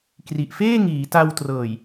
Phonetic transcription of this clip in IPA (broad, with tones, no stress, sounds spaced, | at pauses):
k r i˨˩ ʔ f eː˥˩ ŋ iː˩˦ t a˧ w t r ɤː˨˩ j